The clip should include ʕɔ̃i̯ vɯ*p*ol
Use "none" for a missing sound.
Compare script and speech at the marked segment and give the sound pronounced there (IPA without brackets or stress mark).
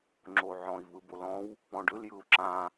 b